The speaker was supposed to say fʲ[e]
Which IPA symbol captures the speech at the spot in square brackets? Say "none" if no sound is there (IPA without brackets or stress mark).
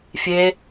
e